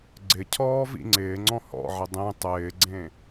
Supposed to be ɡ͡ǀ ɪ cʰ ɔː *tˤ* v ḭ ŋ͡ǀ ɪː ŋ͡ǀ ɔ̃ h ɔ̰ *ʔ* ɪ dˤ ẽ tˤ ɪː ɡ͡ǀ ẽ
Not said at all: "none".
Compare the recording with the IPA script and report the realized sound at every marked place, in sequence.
none, ʕ

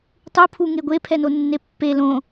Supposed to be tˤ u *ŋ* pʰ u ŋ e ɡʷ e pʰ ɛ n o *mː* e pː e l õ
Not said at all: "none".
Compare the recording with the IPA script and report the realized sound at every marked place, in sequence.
none, nː

